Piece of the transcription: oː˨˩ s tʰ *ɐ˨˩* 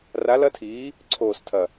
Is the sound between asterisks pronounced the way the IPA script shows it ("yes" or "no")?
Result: yes